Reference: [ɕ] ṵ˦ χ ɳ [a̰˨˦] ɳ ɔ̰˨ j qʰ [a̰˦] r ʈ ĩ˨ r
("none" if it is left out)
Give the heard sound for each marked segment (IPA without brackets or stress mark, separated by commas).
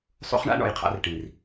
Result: sˤ, a̰˦, a̰˦